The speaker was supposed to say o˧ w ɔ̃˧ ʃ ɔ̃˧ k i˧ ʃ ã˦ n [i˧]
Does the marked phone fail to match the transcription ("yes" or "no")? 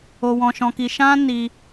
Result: no